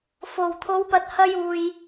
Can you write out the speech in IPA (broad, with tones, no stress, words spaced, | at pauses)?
fo˨˩w t̪ʰo˨˥wpɐ˨t̚hɐ˧juː˨j